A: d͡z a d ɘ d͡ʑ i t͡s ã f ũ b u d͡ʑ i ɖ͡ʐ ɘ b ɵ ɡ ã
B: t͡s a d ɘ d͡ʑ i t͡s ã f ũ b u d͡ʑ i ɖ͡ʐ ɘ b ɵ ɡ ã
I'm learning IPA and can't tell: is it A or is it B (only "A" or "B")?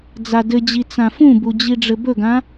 A